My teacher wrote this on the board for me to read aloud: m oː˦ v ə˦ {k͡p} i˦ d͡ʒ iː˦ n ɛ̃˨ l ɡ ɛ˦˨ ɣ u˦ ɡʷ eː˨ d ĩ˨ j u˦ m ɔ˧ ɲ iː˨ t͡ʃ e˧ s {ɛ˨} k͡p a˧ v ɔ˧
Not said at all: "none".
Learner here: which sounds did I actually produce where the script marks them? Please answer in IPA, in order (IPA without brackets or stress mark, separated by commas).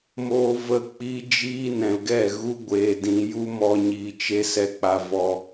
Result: k͡p, ɛ˧